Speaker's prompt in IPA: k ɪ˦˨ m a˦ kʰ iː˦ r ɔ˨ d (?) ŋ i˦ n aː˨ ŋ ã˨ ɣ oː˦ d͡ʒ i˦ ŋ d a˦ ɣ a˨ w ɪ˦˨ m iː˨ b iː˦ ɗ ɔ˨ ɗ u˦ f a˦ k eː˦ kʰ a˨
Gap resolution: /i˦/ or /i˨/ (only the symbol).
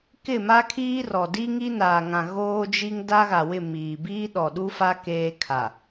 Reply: i˦